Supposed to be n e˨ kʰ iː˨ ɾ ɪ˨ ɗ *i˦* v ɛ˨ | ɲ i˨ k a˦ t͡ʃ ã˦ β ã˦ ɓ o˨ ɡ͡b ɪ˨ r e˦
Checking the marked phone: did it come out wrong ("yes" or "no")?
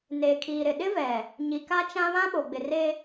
yes